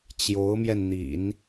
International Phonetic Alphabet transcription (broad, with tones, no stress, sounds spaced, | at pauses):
t͡ɕ j o˧˥ ʊ̯ m j ɛ˧ n n̪ ḭ˨˩˦ n